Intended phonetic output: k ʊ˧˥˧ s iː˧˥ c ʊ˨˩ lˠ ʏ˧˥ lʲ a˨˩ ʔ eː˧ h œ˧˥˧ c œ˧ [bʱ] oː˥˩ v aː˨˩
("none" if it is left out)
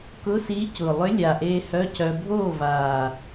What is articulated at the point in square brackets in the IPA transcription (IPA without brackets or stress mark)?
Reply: bʱ